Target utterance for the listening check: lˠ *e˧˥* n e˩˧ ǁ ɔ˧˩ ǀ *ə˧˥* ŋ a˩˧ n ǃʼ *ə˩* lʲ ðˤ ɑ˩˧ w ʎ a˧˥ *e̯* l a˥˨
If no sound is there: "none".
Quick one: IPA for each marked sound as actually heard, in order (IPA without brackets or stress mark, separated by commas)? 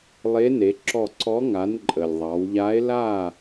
e˧˥, ɔ˧˥, ə˩, e̯